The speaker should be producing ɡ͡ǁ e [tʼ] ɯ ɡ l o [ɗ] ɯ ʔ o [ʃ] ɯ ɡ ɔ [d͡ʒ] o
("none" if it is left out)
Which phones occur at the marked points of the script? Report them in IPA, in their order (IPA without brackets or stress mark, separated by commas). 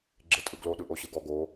tʼ, ɗ, ɕ, ɡ